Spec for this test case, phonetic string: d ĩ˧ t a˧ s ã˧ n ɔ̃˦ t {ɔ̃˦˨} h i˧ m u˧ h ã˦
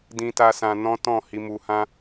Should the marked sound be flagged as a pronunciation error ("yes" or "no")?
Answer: no